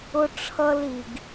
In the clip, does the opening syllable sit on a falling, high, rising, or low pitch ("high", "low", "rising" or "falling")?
high